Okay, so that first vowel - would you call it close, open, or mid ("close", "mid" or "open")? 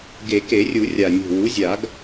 mid